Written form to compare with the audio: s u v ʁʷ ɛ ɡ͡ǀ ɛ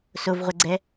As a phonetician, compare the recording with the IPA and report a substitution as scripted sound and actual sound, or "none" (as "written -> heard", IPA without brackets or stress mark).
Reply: u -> o